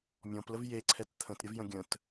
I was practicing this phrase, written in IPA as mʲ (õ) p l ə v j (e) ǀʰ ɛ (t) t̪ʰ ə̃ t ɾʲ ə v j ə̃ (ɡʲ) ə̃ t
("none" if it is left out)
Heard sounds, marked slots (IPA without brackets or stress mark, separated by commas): ɔ̃, e, t, ɡʲ